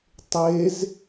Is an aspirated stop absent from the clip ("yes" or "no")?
yes